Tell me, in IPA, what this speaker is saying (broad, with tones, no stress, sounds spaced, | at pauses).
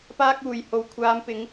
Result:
p aː˥ k̚ uː˨ j h o˨˥ w kʷʰ aː˨˧ m p ɪ˨˧ ŋ